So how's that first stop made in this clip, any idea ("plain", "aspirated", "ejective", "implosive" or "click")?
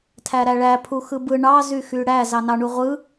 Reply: aspirated